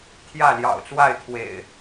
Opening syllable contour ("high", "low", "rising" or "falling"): falling